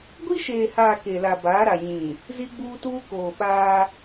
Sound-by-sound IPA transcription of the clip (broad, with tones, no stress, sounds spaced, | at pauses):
ɡʷ i˦ ʃ eː˨ h aː˨ k e˨ l a˨ b aː˨˦ ɾ a˨ ɲ ĩ˨ | z i˦ ɡ͡b uː˦ t uː˦ k oː˨ ɓ aː˦